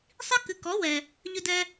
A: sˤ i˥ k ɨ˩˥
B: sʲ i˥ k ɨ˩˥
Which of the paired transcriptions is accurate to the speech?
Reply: A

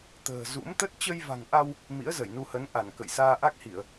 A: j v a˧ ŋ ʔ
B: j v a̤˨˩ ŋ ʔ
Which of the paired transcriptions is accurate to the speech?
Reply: B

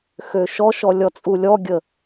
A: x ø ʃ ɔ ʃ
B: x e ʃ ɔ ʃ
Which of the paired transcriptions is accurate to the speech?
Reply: A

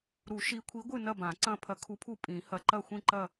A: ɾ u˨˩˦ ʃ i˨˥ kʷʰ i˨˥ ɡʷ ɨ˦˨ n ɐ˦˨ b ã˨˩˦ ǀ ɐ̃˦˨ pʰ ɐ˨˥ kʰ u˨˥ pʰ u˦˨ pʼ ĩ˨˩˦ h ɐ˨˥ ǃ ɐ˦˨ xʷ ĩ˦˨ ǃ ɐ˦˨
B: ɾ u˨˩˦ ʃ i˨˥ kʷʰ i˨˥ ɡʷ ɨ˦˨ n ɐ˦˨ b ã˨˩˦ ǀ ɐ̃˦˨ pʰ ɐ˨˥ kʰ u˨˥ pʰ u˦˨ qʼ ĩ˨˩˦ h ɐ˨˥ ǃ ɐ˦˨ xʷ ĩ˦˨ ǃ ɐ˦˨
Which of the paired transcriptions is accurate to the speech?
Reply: A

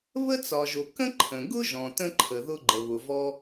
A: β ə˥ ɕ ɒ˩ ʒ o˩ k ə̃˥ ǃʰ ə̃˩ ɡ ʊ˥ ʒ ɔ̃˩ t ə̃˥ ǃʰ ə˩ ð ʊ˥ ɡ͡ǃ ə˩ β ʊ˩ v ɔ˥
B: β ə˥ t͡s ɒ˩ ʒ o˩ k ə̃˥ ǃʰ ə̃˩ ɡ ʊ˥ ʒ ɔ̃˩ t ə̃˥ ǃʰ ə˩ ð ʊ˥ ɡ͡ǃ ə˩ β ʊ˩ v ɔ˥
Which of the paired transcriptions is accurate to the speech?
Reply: B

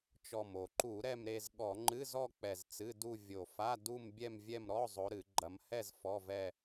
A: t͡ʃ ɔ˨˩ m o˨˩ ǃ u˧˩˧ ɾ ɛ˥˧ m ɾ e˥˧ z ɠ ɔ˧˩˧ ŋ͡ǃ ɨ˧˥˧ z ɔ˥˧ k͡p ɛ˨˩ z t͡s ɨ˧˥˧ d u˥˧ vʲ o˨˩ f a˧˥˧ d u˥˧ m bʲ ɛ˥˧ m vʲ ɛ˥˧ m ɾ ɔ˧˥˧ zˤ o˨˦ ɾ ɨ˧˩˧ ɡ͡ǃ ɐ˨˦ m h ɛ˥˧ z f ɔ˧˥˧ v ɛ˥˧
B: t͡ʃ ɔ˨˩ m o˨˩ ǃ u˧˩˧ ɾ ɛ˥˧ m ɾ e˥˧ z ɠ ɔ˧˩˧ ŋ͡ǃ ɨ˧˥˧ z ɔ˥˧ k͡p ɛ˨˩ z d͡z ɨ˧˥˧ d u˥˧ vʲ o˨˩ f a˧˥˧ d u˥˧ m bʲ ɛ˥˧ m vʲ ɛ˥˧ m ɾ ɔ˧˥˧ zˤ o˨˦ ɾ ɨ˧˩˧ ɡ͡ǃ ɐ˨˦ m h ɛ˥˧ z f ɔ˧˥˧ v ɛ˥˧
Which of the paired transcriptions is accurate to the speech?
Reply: A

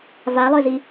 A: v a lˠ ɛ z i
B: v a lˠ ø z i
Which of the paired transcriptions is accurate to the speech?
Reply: B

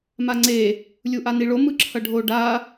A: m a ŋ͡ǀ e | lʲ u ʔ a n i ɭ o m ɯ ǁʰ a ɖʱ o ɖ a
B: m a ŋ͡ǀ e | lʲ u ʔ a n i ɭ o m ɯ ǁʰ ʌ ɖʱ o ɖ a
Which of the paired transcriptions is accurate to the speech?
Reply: B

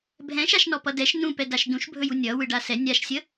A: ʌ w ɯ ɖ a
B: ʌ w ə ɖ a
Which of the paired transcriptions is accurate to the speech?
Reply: A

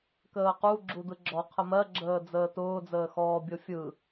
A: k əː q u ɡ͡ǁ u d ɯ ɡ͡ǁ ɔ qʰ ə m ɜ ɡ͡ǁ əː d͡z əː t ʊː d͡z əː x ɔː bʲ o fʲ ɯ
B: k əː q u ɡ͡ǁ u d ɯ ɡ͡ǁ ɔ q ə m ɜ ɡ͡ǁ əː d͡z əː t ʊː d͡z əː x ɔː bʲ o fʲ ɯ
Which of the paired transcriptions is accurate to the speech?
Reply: A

